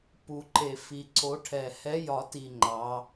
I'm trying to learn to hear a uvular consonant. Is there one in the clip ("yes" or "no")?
no